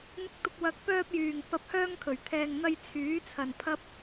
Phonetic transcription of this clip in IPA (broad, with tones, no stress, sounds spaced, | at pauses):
n̪ ɪ˧ k̚ t̪ ʊ˧ k̚ w ɐ˨ k̚ p œː˧ p̚ j yː˨˩ ŋ p ɐ˨˥ p̚ h œː˧ ŋ kʰ ɵ˨˩ ɥ t̪ʰ ɛː˨ ŋ n̪ ɐ˧ j t͡sʰ yː˨˥ t͡sʰ ɐ˨ n pʰ ɐ˥ p̚